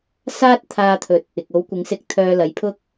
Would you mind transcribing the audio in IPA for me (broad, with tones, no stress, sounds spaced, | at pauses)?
s aː˥ t̚ t̪ʰ aː˧ t̪ʰ ɵ˨˥ t̚ | ɪ˨ k̚ o˨˥ w kʷ ɪ˨˥ ŋ s ɪ˧ k̚ t̪ʰ œː˧ l ɐ˨˧ j pʰ ʊ˥ k̚